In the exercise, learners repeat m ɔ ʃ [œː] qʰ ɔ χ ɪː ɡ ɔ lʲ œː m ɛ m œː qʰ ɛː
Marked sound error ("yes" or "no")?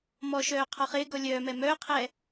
no